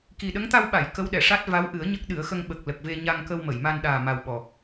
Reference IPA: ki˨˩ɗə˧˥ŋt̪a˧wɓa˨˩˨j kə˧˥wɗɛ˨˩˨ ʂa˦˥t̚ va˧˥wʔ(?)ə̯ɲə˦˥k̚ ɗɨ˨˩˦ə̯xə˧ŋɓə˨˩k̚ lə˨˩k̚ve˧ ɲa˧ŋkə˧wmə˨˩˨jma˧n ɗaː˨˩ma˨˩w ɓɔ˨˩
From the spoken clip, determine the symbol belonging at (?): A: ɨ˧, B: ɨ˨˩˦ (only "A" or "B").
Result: B